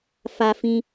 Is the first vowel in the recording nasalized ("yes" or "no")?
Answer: no